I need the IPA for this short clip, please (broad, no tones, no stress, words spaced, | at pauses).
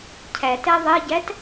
cʰætɛ ðˤeɟæt